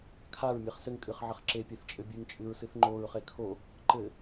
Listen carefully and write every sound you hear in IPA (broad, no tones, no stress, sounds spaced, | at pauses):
kʰ a ɹ mʲ e χ s ɘ ŋ kʼ ɨ χ ʕ ɘ χ ǁ e pʲ e θ t͡ʃʼ ɘ bʲ ɨ ŋ t͡ʃʼ ɨ ɹ s ɨ θ ŋ͡ǃ o ɹ χ e kʰ o | ǃ ɘ